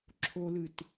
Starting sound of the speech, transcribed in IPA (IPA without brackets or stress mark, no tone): ǁʰ